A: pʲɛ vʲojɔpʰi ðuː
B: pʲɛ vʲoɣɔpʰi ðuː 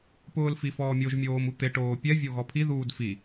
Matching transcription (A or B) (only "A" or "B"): B